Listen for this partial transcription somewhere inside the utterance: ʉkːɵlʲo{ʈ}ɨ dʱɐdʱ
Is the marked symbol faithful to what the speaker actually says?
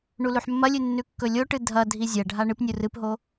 yes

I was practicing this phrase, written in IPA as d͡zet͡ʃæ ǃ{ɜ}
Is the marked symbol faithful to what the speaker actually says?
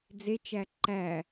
no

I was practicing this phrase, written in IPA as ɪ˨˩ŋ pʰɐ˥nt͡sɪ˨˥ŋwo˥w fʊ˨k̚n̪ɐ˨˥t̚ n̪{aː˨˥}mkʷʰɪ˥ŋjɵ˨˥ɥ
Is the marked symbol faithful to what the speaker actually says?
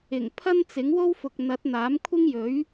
yes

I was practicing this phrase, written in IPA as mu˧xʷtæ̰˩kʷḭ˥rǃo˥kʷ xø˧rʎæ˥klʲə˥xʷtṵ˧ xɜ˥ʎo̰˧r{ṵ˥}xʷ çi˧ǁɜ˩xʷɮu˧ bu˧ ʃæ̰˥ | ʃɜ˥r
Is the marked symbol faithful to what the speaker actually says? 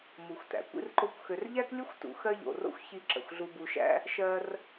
no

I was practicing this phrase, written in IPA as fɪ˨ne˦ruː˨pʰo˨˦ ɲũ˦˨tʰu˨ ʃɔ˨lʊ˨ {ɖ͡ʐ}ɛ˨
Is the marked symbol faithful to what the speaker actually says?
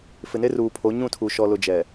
no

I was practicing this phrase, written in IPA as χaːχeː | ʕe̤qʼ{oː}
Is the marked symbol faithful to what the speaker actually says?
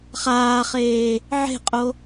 no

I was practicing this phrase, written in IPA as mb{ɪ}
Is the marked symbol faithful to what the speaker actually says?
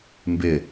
yes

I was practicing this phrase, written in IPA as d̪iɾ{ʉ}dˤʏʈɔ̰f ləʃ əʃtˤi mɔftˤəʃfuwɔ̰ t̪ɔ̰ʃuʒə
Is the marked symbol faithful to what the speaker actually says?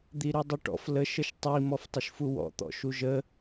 yes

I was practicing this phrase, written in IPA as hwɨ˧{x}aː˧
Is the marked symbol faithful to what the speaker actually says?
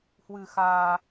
yes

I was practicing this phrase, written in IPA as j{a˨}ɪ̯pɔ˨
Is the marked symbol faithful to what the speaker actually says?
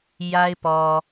no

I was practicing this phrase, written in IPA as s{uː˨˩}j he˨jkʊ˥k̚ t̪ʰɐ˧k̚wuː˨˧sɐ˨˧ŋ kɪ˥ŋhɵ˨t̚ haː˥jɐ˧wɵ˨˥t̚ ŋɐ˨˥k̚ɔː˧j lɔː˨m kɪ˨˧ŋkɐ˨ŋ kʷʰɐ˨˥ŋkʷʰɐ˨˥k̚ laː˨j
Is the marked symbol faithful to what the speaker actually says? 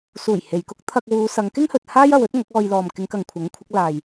yes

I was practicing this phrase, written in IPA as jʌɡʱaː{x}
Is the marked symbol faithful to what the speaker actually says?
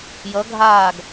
no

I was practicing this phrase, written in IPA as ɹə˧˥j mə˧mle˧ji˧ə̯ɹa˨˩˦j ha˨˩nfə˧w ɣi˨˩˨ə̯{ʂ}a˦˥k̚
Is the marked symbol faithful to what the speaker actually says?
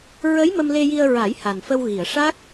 yes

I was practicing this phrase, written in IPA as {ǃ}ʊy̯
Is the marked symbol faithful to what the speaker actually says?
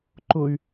yes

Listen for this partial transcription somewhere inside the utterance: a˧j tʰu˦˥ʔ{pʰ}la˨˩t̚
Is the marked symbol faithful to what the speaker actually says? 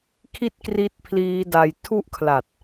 no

